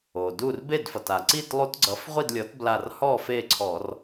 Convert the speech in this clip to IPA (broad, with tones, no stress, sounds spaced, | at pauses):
o˩ d u˥˨ r b e˥˨ d f ʌ˩ t a˩ ǀ i˥˨ t lˠ u˦˥ t ɡ͡ǀ ʌ˨˥ f ʁʷ i˥˨ d lʲ ɔ˨˥ t b l a˧˩ r h ɔ˥˨ f e˥˨ ǀʰ ɔ˧˩˧ r